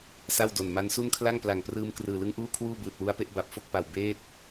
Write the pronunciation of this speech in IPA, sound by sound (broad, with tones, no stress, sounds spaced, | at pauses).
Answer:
s a˥˩ w d o˨˩ n m a˦˥ n s u˥˩ n kʰ l a˥˩ ŋ p l a˨˩ ŋ p r ɯː˧ m k r ɯː˨˩ l ɯ˦˥ ŋ ʔ uː˥˩ kʰ w uː˥˩ b ɯː˨˩ t̚ w u˧ a̯ p e˦˥ ʔ b a˨˩ p̚ f o˥˩ k̚ p a˨˩ w b eː˦˥ t̚